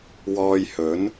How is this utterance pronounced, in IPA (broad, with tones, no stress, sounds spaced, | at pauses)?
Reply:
w ɔː˧ j h ɵ˨˥ n